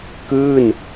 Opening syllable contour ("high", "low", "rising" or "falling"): falling